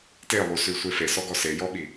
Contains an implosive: yes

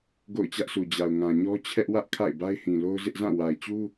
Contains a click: no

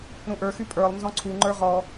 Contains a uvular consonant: yes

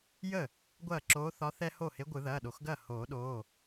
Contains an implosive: yes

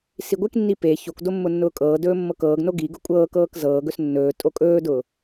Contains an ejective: yes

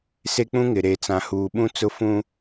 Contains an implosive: yes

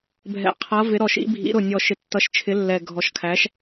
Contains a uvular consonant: yes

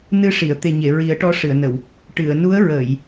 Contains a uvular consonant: no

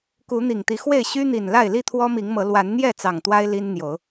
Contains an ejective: no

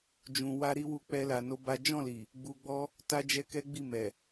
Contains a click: no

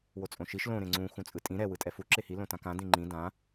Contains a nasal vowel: yes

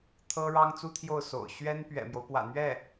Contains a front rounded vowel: no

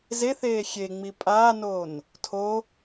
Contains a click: no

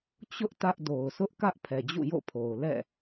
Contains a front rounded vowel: no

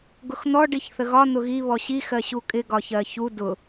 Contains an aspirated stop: no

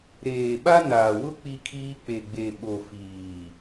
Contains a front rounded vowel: no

